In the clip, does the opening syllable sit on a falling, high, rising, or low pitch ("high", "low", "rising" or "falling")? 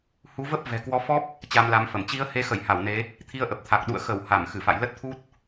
rising